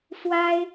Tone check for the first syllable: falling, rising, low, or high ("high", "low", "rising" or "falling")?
high